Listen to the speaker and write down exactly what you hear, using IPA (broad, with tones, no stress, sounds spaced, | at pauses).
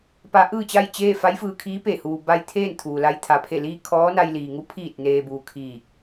p a˧˥ ʔ ɯː˥˨ t͡ɕ a˥˨ j t͡ɕ eː˥˨ f a˧˥ j f ɯː˧ kʰ iː˧˥ p e˧˩ h uː˩ b a˧ j t̪ʰ eː˥˨ n t̪ʰ uː˩ l a˧ j t̪ʰ a˩ pʰ e˧˩ l iː˥˨ kʰ ɔː˧˥ n a˧ j l iː˩ ŋ u˧˥ pʰ iː˧˩ t̚ n eː˩ b uː˩ kʰ iː˧˩ k̚